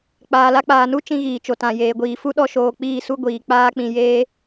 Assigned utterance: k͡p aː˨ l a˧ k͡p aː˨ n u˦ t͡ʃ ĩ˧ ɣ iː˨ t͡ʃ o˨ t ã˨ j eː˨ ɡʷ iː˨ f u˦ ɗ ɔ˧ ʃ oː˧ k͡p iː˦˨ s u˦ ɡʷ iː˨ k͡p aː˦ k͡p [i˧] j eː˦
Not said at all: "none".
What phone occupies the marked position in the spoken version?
ĩ˧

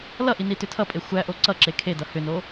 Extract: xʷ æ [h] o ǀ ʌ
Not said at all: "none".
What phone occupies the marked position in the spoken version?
ʔ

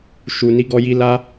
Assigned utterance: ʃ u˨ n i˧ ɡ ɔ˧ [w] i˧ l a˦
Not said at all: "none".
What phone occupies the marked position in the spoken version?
j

